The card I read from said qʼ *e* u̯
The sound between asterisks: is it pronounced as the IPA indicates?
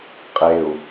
yes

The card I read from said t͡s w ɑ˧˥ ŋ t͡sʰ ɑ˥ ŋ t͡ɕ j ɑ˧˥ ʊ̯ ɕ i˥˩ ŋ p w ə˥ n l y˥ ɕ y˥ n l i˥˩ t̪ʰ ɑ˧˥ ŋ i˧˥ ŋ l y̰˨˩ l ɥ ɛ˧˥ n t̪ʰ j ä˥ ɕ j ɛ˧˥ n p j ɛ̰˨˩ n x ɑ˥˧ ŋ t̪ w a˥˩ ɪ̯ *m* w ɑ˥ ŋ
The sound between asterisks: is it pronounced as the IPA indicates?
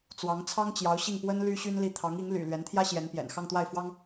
no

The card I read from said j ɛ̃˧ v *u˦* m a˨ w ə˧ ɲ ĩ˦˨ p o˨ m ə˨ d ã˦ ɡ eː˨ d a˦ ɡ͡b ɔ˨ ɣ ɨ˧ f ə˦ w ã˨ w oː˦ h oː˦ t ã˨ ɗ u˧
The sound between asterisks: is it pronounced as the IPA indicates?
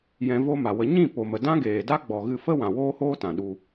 no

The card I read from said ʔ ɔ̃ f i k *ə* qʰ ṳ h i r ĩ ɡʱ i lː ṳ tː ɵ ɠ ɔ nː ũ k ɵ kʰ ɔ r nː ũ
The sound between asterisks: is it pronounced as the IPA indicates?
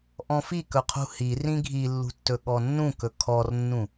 no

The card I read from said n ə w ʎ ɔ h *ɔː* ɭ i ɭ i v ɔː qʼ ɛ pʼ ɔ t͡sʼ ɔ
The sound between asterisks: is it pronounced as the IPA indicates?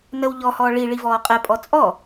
yes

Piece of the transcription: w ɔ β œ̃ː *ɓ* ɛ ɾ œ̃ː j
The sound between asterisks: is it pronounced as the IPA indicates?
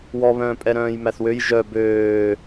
no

